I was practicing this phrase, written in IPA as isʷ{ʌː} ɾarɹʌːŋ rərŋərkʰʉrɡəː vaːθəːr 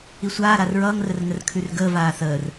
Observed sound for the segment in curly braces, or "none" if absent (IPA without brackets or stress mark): aː